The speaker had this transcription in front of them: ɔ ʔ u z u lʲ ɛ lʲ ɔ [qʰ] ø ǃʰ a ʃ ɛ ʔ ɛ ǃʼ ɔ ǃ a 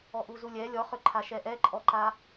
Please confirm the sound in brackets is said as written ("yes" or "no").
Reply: no